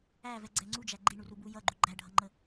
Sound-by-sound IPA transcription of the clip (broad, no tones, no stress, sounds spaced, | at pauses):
æ v ɛ ɡ͡ǀ ɛ ŋ͡ǀ u d͡ʒ æ ɡ͡ǃ i ɳ u r u b u j ʌ ɡ͡ǃ u ɡ͡ǃ æ ɖʱ ʌ ŋ͡ǃ ə